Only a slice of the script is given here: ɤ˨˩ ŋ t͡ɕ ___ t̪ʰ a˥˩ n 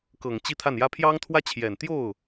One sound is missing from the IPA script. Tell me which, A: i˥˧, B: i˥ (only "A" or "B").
A